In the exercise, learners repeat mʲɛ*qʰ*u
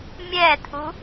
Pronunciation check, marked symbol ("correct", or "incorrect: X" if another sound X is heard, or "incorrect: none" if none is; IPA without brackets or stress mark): incorrect: tʰ